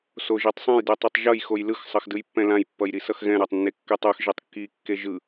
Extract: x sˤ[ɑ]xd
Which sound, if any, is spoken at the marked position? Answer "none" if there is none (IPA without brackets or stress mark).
ʌ